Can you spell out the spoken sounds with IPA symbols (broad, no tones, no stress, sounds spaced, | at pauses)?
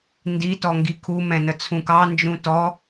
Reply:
n d i t ɔ ŋ ɡ i kʰ u m ɛ̃ n ə t͡sʰ ũ k ɑ n d͡ʒ ũ t ɔ